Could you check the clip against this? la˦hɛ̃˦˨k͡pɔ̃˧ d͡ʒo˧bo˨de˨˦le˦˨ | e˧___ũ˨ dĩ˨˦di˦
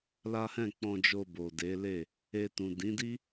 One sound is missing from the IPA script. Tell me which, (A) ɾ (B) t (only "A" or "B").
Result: B